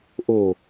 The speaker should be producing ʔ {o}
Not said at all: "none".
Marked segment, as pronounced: o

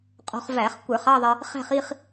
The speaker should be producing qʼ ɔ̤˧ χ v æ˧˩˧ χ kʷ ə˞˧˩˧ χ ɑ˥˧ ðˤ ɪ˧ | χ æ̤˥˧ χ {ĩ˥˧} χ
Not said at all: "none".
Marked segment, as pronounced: i˥˧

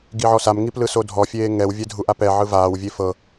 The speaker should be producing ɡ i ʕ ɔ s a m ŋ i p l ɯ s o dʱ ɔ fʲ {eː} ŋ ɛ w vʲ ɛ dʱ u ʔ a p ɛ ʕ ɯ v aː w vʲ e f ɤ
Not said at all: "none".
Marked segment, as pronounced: eː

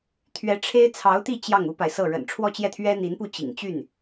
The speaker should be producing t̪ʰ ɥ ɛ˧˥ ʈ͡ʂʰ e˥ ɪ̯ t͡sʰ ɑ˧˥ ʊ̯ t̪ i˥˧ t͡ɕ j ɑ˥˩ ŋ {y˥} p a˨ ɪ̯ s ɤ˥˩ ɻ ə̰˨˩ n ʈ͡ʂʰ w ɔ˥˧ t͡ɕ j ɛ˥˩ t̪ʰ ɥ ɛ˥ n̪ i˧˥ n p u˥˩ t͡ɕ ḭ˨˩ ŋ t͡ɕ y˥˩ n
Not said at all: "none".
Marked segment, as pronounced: u˥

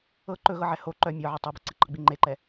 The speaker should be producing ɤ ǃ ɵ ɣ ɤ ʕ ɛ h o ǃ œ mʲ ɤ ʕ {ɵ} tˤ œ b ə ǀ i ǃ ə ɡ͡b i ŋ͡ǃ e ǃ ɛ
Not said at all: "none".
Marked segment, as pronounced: œ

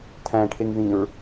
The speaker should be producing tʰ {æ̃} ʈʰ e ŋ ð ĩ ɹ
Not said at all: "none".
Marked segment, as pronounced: æ̃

